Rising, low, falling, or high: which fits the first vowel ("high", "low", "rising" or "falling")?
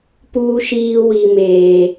high